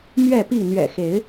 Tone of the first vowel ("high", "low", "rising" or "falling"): falling